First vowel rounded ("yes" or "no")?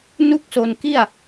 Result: yes